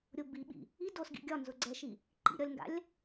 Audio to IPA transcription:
ɾʲ ʊ b i ɓ ḭ | i d o s ɡ ḭ ɡʲ ɒ n z ʊ ɡ͡ǀ ɛ ʃ i | ǃ ḭ ɾʲ ɒ lʲ ŋ ɡ a̰ lʲ

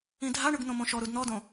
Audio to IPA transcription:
ĩ dʱ a ɳ ɯ ɡ n̪ õ m õ ʃ ɔ ɾ u d n̪ ɔ d õ

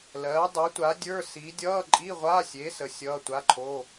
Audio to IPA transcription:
l ɜː˨˥ dˤ əː˨˥ tʷ a˨˥ dʲ ə˞˧˥˧ s i˨˥ dʲ ʌː˧˥˧ ǃʼ i˧˥˧ ʁʷ a˧˥˧ sʲ e˨˥ s ə˨˥ sʲ ʌː˧˥˧ tʷ a˧˥˧ ǃʰ o˧˥˧

